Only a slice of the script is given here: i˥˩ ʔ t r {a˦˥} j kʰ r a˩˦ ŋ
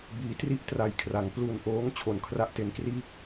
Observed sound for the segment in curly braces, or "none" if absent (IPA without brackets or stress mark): a˨˩